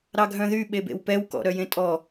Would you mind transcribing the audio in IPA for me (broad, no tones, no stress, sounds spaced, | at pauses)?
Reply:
ɾ ɑ ɡʱ œ̃ ð y ɓ e b ḛ w p ɛ w k ɔ̰ ɾ œ j ẽ tʼ ɔ